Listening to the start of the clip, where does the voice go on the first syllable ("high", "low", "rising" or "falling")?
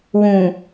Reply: low